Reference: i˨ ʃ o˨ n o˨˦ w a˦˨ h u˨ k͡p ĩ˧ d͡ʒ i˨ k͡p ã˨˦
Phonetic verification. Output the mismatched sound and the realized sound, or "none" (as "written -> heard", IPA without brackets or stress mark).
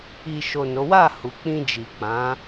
none